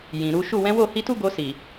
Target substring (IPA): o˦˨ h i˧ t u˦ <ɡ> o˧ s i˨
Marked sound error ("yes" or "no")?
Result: no